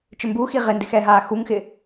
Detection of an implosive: absent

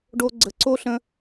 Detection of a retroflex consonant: present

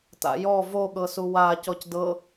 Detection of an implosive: present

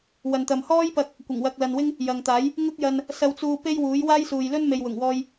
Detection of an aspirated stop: absent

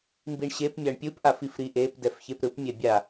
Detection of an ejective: absent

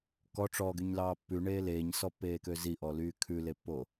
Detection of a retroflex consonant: present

